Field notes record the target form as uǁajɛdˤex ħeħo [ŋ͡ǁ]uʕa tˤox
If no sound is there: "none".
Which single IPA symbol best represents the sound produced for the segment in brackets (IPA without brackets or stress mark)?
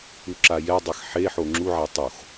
ŋ͡ǁ